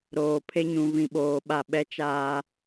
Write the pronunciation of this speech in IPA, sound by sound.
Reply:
ɾ oː˨ pʰ e˦ ɲ ũ˨ v ĩ˨ ɓ oː˨ ɓ a˦˨ ɓ ɛ˦ t͡ʃ aː˦

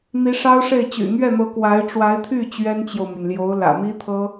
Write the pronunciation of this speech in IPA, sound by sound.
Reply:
n̪ i˧˥ ʂ ɑ˥ ʊ̯ ʂ e˥˩ ɪ̯ t͡ɕ y̰˨˩ n̪ ɥ ɛ˥˩ n̪ ɤ˧˥ k w a˧˥ ɪ̯ ʈ͡ʂ w a˧˥ ɪ̯ t̪ʰ y˥˩ t͡ɕ ɥ ɛ˥ n t͡ɕ j o˨ ʊ̯ m y˩ n l j o˧˥ ʊ̯ l ä̰˨˩ m i˥ t̪ʰ ɤ˥

